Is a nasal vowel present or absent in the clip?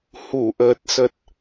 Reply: absent